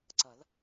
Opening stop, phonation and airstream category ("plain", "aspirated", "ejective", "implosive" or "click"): click